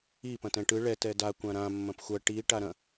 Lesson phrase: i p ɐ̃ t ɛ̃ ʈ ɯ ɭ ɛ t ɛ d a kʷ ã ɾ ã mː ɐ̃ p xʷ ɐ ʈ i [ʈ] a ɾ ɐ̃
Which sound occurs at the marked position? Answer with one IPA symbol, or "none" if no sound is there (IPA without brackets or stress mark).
ʈ